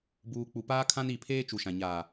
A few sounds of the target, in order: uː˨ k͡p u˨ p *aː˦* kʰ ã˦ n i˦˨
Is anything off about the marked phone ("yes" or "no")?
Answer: no